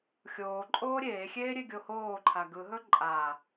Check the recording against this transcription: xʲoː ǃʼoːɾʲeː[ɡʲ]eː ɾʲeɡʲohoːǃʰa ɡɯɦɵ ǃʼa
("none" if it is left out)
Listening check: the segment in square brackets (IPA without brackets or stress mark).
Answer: xʲ